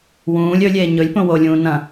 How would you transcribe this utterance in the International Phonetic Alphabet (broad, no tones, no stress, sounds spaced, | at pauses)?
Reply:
w ũː lʲ ɵ lʲ eː ɲ ɵ lʲ p õ w o lʲ ũː n ɐ̃